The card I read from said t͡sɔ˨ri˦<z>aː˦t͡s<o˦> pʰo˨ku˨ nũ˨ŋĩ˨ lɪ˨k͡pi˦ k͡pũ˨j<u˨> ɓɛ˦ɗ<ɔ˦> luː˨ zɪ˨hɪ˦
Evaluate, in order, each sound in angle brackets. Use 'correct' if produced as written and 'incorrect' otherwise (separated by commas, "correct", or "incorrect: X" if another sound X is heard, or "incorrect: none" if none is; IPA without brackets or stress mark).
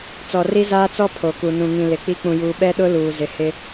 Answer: correct, incorrect: ɔ˦, incorrect: uː˨, incorrect: ʊ˦